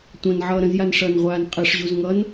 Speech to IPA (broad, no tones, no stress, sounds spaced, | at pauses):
tʷ ɐ̃ n ʕ ʌː ɾ ə̃ z j a n ʂ ʌ n ʁʷ aː n qʼ ɛ ʂ ʑ u z ŋ ʌ n